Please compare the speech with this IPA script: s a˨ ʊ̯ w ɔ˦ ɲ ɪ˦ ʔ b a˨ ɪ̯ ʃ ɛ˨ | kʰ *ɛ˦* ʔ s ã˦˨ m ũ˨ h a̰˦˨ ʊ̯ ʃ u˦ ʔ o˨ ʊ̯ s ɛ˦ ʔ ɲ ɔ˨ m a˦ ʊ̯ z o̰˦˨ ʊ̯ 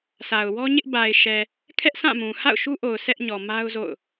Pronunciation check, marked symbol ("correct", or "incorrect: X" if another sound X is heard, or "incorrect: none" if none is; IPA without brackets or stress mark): correct